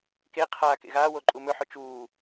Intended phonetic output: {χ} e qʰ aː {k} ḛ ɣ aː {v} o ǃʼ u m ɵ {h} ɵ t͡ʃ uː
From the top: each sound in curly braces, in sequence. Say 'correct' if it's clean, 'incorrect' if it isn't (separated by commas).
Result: incorrect, correct, incorrect, incorrect